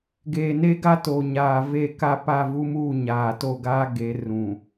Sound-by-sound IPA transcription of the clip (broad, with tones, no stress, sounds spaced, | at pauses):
ɡ eː˨ n e˦ ɡ a˦ t o˨ ɲ aː˨ v e˦˨ k a˦ p a˦˨ v u˦ m uː˦˨ ɲ aː˨ t o˦˨ ɡ aː˦ ɡ e˨˦ r ũ˨